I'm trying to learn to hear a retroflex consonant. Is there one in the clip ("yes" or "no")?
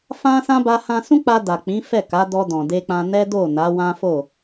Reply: no